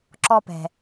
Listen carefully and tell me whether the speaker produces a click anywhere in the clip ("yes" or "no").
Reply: yes